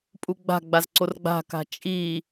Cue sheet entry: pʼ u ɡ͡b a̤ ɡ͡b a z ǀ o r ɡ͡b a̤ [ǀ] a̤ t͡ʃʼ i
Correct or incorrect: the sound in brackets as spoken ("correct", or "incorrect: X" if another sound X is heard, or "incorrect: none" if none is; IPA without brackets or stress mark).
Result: incorrect: k